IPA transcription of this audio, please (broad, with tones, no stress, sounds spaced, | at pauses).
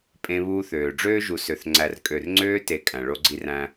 pʼ ẽ˦ β uː˦ θ øː˨ ɖ͡ʐ øː˦ ʒ u˨ s ø˨ θ ŋ͡ǀ æ˨ r kʼ ø˨ r ŋ͡ǀ øː˦ t e˨ kʼ æ̃˨ ɭ o˦ ɡ͡ǀ i˦ r æ̃˦